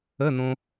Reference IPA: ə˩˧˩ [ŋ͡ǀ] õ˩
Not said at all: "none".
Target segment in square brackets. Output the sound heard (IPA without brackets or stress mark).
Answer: n̪